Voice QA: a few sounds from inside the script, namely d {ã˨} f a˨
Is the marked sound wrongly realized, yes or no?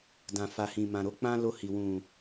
no